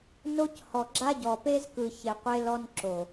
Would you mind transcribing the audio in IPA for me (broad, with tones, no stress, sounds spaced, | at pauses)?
n o˦ c h ɔ˨ ɡ͡ǁ a˦ ɟ ɔ˨ p e˦ z k ɯ˨ ç e˨ qʷ e˦ l ɔ˦ n ǁ o˨